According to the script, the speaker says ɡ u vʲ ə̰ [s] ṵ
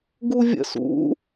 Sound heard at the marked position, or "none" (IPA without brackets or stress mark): s